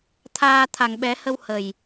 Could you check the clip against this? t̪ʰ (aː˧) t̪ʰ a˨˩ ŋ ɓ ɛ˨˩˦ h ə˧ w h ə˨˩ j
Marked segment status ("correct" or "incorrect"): correct